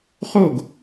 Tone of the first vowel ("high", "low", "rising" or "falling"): falling